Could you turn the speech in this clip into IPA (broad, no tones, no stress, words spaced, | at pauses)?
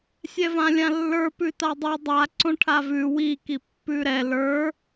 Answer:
sʲɛvãlʲãlːə˞ pʉtadˤʉ dˤa ǀõʈʰavʉ wi kipːʉɾɛ lə˞